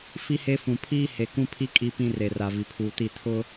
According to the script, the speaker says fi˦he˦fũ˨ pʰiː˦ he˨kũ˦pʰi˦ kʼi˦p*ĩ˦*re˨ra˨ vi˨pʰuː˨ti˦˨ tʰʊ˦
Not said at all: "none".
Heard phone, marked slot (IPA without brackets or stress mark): ĩ˦